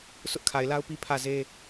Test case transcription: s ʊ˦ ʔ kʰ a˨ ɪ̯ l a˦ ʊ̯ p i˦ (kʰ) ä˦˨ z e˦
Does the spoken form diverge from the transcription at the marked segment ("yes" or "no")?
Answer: yes